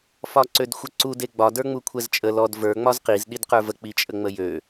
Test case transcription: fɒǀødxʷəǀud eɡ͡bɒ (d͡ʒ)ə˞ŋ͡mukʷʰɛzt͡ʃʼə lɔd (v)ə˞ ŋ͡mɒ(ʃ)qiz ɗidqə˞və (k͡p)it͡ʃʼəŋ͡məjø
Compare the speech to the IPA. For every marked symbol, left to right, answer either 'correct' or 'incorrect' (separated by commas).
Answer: incorrect, correct, incorrect, correct